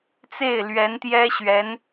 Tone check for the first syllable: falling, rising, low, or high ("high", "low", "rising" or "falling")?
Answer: falling